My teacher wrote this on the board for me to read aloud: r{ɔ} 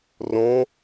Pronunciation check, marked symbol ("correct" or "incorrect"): incorrect